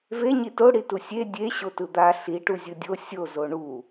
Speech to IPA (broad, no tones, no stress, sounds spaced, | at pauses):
v e ɲ i t o ɽ i t u sʲ e dʲ e ɕ o t ɯ d̪ a ɬ i ʈ u zʲ ɯ dʲ o sʲ o z o ɳ u